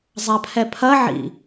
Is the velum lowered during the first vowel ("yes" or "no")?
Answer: no